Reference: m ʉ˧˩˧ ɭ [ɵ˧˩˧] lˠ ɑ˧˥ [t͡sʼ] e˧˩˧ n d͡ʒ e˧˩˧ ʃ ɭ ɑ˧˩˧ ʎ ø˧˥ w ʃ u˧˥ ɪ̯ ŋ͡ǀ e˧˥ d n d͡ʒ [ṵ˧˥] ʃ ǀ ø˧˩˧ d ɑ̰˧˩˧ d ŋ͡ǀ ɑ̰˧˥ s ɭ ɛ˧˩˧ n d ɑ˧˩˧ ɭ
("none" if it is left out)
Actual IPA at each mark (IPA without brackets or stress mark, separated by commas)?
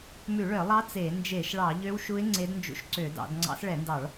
œ˧˩˧, t͡s, ṵ˧˥